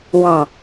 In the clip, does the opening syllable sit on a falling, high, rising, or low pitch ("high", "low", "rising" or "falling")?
low